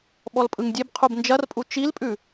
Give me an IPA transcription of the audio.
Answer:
ɓ ɔ l pʼ ɯ ŋ dʲ e b qʰ u b n d͡ʒ ɐ r pʼ u t͡ʃ i l pʼ ʉ

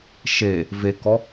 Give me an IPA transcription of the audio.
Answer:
ʃ e | v e k ɔ

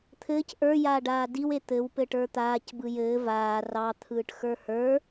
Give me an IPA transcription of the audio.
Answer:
t̪ʰ ɘː c ʔ ə˞ j aː ɖ aː d i w e t̪ ɘ w p ɘ ʈ ə˞ t̪ aː c b ɯ j ɘː v aː r ɑ t̪ʰ ɯː ʈ x ə˞ h ə˞

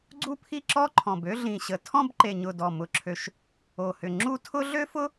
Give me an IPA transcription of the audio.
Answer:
ɡ͡ǀ u˥˧ pʰ i˥˧ ǁ ɔ˥˧ ǃʰ ɔ̃˨˩ b ø˥˧ ɮ ĩ˨˩ ɕ ə˨˩ tʰ ɔ̃˥˧ b ǃ e˨˩ ɲ ʊ˨˩ d ɔ˨˩ m ʊ˨˩ ǁʰ ø˨˩ ʃ | o˨˩ h ʏ˨˩ ŋ͡ǁ u˥˧ tʰ ʊ˥ ɮ ø˥ f ʊ˥

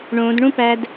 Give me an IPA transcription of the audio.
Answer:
ɳ õ d ɳ ũ p æ d

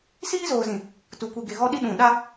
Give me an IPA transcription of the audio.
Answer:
s iː˦ z oː˨ z ĩ˨ | t u˨ kʷ i˨ ɡ e˨ ɣ ɔ˦ ɗ i˦ ɗ ũ˨ ɗ a˦

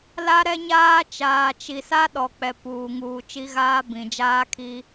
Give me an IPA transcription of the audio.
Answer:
l a˦ ɾ ɛ˦ ɲ aː˦ t͡ʃ aː˨ t͡ʃ i˨ s a˦ ɗ ɔ˨ k͡p ɛ˨ p uː˨ ŋ uː˨ t͡ʃ i˦ ɣ aː˦ b ĩ˨ d͡ʒ aː˦ kʰ i˦

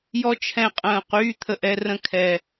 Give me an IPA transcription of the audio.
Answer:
j ɔ˦ t͡ʃʰ ɛ̃˦˨ qʼ ə̃ː˦˨ q yː˦ t̪ʰ ə˦˨ ʔ ɛ˦ r ə̃˦ kʰ ɛ˦

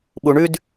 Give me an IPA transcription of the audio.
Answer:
ɓ u ɳ ʉ d

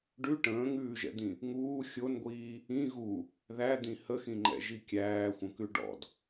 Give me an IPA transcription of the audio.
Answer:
ɖ ʉ ʈ ə̃ː ŋ ʉː ʒ ɛ̰ d̪ ĩ | ŋ uː xʲ o n ɡʷ iː | ĩ ɣ u | ð æ d̪ ĩ h ə x ĩ ŋ͡ǃ ɛ̰ ʒ i kʲ æː xʷ ə̃ k ʉ ɖ ɔ̰ d

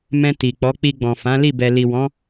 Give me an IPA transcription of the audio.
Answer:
m ɛ̃˧ t i˨ k͡p ɔ˨˦ k͡p i˧ ɡ͡b ɔ̃˨ f ã˨˦ l i˦˨ b ɛ˨ l i˨ w ɔ̃˨˦

